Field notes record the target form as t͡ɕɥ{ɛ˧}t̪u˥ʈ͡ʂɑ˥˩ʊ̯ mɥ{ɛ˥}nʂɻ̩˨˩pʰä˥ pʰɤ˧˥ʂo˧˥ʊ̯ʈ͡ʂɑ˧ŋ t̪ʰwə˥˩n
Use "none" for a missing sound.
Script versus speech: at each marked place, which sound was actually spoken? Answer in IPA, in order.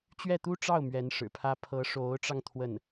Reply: ɛ˥˩, ɛ˧˥

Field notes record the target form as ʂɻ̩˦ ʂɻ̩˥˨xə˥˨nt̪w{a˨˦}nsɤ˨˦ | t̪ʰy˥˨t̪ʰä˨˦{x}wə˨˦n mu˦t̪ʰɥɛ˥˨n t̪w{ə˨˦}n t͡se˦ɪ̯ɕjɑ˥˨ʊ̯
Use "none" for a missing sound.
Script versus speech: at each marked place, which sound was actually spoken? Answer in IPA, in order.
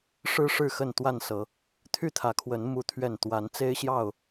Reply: a˥˨, kʰ, a˨˦

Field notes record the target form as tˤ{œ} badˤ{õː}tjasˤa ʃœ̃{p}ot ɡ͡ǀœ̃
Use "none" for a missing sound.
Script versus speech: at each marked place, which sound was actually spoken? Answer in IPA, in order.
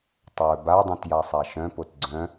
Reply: œ, õ, p

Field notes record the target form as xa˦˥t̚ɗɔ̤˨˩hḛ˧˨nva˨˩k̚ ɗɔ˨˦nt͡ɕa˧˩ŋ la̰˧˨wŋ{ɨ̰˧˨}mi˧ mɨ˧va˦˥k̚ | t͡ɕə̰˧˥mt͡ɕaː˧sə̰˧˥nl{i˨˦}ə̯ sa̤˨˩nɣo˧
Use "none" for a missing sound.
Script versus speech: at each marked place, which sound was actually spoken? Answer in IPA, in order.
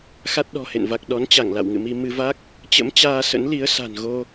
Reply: ɨ̰˧˨, i˨˦

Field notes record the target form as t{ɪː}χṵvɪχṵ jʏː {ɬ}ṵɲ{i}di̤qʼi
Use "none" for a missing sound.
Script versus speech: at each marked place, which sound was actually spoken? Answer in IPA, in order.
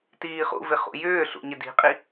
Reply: iː, ɬ, ɪ

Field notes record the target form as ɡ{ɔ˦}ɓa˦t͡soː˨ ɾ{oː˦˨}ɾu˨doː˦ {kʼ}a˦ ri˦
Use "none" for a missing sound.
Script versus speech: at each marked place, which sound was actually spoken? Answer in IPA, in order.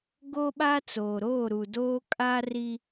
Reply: o˦, oː˦˨, kʼ

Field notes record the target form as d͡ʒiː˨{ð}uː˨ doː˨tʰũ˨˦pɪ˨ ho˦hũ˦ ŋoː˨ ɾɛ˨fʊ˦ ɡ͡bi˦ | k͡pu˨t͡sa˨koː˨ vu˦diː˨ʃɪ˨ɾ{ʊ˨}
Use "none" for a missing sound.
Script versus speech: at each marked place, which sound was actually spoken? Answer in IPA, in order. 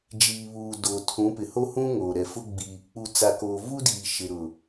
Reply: β, ʊ˨

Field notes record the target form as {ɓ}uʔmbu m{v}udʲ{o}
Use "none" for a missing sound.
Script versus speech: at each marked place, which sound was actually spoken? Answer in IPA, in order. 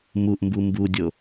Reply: m, b, o

